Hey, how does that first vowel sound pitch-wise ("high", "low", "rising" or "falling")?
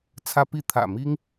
high